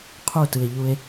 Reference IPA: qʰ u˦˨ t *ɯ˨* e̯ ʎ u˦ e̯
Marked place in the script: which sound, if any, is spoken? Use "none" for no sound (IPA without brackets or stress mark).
ɯ˨